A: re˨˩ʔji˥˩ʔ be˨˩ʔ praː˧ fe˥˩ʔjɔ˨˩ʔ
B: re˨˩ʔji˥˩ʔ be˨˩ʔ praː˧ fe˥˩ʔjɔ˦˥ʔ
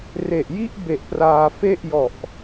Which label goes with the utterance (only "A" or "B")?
A